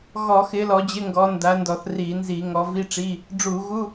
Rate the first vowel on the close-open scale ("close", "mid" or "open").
mid